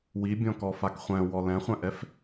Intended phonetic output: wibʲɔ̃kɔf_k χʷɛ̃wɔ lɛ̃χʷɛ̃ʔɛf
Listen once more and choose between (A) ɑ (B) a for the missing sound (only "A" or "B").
B